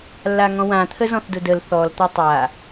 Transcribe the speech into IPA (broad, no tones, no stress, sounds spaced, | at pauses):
lː a ŋ ɔ̃ w ã t̪ʰ ə z ɔ̃ θ d ʊ d ə l θ ɔ l t̪ a tˤ a